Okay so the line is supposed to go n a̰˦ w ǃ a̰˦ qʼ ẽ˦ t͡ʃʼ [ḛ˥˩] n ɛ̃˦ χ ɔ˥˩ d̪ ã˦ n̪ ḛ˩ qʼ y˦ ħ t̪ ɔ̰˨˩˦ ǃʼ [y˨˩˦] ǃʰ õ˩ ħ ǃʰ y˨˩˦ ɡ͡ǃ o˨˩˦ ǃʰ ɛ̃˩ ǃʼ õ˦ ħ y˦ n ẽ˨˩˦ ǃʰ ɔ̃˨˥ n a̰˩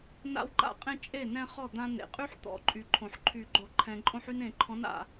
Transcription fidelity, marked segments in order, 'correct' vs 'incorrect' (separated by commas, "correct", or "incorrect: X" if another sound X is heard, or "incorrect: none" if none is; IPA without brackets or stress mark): incorrect: e˥˩, incorrect: y˩